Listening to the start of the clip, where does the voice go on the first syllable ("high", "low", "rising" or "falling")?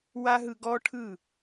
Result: high